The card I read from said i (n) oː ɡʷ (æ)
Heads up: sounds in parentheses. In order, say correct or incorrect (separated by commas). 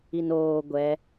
correct, incorrect